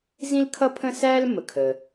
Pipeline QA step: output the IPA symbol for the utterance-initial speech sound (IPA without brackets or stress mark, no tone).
z